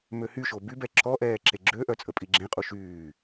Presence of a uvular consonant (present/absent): present